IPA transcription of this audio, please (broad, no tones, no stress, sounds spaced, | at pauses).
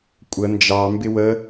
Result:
kʷʼ ə n d͡ʒ ɑ m b ɪ w ə